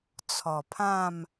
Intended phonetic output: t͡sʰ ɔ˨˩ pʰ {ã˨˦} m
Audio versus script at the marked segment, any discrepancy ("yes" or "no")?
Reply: yes